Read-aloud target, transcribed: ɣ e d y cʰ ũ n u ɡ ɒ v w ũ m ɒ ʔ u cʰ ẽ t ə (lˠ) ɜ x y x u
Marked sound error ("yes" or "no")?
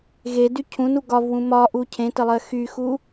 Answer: no